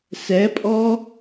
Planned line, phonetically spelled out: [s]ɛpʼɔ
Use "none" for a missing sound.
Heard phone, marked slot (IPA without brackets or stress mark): s